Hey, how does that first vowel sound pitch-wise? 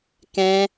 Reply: high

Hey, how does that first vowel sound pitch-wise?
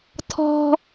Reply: high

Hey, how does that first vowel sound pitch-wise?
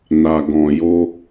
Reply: low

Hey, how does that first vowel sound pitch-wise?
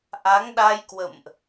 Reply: rising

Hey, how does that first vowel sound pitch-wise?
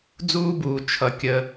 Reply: high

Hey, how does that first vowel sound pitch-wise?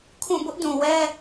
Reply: falling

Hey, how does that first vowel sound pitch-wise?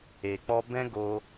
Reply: low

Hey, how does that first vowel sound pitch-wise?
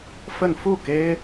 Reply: falling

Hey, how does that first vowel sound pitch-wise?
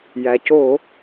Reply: low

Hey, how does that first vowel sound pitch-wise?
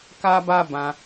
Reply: high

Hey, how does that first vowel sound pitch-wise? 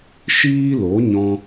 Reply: high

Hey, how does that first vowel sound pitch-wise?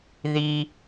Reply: low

